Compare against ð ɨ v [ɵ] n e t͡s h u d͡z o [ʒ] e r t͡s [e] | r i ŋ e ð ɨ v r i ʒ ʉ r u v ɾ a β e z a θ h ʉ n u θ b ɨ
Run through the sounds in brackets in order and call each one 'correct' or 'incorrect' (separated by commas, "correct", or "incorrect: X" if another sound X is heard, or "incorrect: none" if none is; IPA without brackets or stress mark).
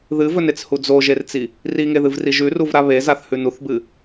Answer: correct, correct, incorrect: i